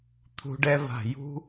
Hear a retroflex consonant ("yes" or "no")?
yes